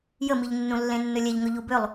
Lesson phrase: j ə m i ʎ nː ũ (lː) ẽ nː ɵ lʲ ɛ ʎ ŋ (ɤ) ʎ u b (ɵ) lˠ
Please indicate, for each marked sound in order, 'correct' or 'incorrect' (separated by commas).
correct, incorrect, incorrect